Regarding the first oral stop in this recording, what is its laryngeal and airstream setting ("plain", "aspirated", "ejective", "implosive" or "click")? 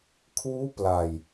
aspirated